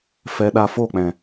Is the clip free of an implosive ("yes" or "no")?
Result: no